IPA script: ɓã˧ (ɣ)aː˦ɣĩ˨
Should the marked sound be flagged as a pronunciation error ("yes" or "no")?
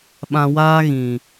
yes